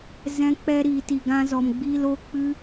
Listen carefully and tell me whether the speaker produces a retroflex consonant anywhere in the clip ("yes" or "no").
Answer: no